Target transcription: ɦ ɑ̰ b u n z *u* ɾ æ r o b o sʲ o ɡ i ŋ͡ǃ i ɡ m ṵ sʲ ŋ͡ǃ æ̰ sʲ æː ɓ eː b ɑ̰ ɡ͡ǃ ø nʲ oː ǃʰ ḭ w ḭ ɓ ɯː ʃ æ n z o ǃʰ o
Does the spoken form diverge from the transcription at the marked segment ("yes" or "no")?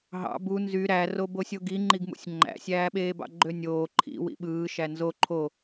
yes